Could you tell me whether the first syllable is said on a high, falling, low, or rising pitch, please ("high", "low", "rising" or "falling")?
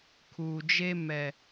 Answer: low